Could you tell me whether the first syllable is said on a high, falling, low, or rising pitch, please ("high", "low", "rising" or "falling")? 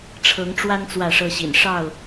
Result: rising